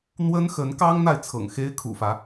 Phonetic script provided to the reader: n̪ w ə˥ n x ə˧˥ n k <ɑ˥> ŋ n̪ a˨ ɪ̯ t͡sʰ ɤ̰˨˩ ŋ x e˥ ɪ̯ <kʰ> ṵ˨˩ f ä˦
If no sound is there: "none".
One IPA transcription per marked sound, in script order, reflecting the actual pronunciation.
ɑ˥, kʰ

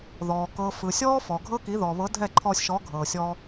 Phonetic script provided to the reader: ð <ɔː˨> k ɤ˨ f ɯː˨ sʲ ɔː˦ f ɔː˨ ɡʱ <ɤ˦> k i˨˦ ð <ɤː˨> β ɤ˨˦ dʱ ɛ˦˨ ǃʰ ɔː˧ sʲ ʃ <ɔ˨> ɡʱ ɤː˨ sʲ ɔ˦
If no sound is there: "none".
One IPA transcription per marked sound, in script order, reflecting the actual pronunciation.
ɔː˨, ɤ˦, ɔː˨, ɔ˨˦

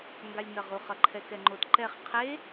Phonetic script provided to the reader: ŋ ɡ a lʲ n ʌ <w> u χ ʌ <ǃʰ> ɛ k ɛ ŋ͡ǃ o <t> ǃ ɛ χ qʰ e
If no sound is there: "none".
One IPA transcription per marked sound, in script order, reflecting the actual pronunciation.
ʁ, ǃʰ, t

